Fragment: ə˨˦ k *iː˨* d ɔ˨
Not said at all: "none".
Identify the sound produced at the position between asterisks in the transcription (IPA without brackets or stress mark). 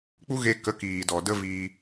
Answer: iː˨